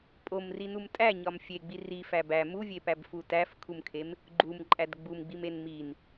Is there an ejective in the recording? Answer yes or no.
yes